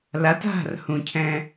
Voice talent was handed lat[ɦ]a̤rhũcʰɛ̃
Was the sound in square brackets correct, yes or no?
yes